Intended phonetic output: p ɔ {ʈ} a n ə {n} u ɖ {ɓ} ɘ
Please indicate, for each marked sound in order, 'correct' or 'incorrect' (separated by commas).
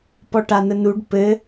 correct, correct, incorrect